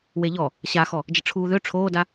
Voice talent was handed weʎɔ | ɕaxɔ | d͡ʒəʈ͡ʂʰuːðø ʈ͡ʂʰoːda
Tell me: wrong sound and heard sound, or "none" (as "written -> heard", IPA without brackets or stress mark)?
none